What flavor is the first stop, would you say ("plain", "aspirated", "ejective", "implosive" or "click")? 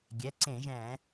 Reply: plain